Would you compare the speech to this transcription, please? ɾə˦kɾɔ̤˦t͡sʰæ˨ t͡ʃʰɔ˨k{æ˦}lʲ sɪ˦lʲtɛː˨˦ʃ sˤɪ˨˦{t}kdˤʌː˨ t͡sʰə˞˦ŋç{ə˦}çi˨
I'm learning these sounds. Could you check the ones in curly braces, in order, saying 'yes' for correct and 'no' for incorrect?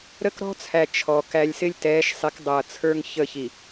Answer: yes, no, no

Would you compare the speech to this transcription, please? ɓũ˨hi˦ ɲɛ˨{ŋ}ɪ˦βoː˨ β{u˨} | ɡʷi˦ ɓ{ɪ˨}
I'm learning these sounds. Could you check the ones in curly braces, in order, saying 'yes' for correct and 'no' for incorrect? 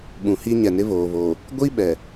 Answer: no, no, no

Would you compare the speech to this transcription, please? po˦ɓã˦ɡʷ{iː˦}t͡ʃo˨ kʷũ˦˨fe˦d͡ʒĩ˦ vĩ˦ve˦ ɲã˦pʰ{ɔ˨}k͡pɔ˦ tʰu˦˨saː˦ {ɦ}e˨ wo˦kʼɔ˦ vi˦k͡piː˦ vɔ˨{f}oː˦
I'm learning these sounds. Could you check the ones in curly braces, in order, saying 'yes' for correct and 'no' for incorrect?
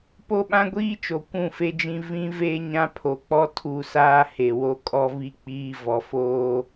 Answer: yes, no, no, yes

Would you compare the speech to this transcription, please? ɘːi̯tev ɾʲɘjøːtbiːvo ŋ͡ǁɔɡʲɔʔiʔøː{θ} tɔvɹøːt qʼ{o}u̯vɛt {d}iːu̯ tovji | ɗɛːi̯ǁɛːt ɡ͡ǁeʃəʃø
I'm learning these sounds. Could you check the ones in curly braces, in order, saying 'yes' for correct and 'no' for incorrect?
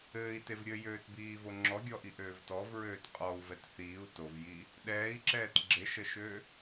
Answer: no, no, no

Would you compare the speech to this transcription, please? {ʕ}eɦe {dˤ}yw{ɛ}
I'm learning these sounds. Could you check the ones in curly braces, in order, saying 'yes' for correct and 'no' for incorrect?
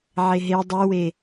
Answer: yes, yes, no

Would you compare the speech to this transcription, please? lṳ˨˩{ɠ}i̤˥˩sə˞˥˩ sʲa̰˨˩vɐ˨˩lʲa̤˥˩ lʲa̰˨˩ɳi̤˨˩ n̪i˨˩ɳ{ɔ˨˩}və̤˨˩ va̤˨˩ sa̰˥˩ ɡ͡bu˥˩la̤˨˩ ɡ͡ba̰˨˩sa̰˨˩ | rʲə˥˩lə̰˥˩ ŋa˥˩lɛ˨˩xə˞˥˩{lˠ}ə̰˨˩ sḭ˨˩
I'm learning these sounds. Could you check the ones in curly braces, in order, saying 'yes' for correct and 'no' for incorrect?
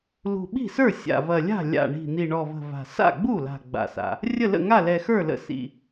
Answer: no, yes, no

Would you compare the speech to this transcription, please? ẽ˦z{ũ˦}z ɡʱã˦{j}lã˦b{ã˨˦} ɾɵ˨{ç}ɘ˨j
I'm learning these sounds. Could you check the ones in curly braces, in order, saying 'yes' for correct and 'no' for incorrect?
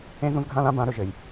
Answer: yes, no, yes, no

